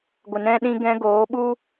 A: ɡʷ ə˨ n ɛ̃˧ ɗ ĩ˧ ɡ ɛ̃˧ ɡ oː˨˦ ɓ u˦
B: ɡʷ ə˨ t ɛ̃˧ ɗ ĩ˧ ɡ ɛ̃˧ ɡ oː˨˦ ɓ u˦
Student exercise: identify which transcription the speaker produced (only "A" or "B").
A